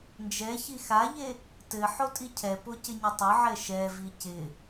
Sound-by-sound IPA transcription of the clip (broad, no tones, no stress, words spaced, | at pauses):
nd͡ʒɛ çixaʎe | tɘ ħotʼicʰɛpo cɪɲətˤʊʕɛ ʃɛvi cɪ